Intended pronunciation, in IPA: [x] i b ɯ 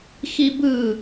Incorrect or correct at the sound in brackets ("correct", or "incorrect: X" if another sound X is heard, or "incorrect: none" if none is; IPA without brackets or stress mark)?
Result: correct